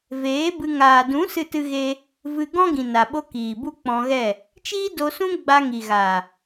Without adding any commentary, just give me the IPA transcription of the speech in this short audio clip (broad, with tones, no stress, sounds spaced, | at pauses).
v eː˨˦ b ɨ˧ ŋ aː˨ d ũ˨˦ s ɨ˦ t ɨ˦ ɣ e˦ | v ɨ˧ ɡ ɔ̃˦ ɡ ĩ˨ n a˨ ɓ o˧ k iː˨ b u˦ k͡p ɔ̃˧ ɣ ɛ˦˨ | t͡ʃ iː˦ d o˧ s ũ˦ ɡ͡b a˧ ŋ i˨ ɣ a˨